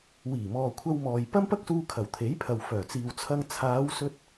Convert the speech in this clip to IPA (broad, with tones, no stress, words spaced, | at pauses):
wiː˨˩mɔː˨kʷʰɐ˧wmɔː˨j pɐ˥mpɐ˥k̚suː˧kʰɐ˨˩w t̪ʰe˨˥jpʰɐ˨w fœː˨˩t͡siː˨wt͡sʰɐ˧ŋ t͡sʰaː˨˧wsɵ˧t̚